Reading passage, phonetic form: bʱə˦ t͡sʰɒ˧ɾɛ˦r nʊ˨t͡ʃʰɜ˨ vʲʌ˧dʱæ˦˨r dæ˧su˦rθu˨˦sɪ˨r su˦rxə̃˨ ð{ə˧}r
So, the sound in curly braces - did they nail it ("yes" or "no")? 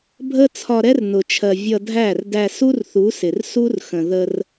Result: yes